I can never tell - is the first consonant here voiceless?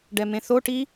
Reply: no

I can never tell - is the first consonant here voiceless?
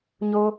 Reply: no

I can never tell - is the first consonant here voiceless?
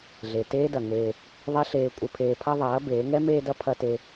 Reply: no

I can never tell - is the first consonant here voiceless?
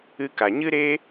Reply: yes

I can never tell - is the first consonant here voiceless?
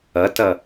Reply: yes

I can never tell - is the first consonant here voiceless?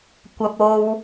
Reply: yes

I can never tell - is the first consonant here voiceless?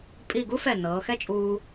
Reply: yes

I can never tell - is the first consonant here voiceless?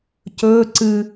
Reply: yes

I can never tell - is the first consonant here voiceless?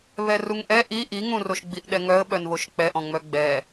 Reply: no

